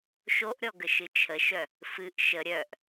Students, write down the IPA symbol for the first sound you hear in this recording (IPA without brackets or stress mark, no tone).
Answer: ʃ